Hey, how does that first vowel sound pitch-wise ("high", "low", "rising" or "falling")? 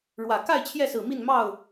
low